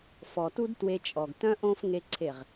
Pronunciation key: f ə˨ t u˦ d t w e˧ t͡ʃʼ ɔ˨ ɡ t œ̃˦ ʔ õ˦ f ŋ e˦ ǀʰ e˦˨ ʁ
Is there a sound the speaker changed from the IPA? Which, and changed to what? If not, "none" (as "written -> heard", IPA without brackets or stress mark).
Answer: ə˨ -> ɔ˨